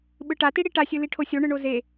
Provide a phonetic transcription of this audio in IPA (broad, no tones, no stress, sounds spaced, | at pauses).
ɓ ɯ ʈ a t i ɽ i ʈ a sʲ ɯ l i ʈʰ o sʲ o ɳ ɯ ɳ o z e